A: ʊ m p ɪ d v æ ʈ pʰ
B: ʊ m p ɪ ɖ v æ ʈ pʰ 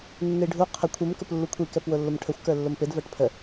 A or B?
A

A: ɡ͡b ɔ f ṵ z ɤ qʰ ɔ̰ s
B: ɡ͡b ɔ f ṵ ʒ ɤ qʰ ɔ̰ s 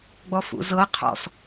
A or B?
A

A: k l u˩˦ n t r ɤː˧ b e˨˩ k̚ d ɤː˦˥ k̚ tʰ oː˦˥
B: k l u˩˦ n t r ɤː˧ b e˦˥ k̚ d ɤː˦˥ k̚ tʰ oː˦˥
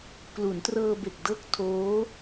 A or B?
A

